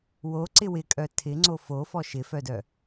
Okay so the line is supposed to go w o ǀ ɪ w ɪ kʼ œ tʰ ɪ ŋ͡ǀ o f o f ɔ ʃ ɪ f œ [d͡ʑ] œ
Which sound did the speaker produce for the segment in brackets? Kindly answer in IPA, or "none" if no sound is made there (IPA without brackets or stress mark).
d